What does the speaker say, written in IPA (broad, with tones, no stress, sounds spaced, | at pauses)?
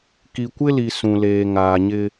k i˨ kʷ ɪ˦ l i˨ s ũ˨ l eː˨ ŋ aː˨ ɲ ɪ˦